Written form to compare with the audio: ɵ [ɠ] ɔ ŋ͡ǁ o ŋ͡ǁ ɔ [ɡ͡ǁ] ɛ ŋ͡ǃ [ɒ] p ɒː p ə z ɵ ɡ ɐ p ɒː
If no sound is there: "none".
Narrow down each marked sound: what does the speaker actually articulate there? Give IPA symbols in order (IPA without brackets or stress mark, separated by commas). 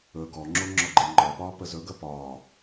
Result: ɡ, ɡ͡ǃ, ɒ